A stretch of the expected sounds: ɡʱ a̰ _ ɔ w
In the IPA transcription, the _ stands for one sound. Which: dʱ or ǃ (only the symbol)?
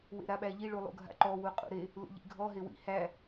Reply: ǃ